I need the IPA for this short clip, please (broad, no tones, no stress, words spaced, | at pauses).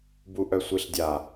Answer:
buʔœsʷiɬdʲa